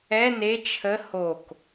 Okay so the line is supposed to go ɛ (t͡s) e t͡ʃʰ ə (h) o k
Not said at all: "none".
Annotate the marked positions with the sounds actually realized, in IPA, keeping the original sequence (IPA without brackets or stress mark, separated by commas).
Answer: n, h